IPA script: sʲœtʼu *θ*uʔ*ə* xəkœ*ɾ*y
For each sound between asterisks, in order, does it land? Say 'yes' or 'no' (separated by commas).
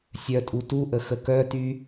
no, yes, no